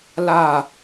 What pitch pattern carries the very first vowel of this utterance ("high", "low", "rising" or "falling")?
falling